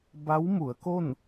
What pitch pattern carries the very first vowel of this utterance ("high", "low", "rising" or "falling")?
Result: rising